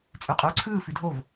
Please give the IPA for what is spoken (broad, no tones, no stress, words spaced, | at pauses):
t͡sʼʉqʼʉːǀʰɯː fʉdʱov